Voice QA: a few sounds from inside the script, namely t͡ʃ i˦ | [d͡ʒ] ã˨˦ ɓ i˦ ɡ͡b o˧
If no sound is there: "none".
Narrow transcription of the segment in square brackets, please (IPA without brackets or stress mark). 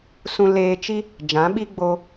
d͡ʒ